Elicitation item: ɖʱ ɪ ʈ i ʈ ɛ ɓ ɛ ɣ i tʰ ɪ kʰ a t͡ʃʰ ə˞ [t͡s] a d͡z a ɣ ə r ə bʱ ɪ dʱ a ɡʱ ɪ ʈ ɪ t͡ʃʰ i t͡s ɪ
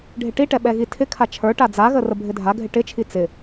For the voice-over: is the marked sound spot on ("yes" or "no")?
no